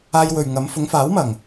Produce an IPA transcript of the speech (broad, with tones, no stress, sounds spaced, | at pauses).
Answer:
aː˧ j w ɵ˨ ɥ ŋ ɐ˨˧ m f ʊ˨˧ ŋ f aː˨˥ w m ɐ˨˩ ŋ